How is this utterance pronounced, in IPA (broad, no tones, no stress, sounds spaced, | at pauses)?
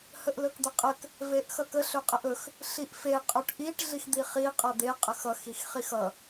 h ə ʔ l ɵ k d̪ ə qʼ ə k | v e ʔ x ʌ k ə ɬ ɵ qʼ ə ʔ ɵ x | ɬ i ʔ f e qʼ ɵ ʈ ʔ i ʈ ɮ i x d̪ i χ i qʼ ʌ d̪ e qʼ ə x ʌ x i x χ i x ʌ